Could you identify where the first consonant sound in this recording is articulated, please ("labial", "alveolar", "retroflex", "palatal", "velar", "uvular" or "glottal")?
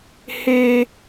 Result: glottal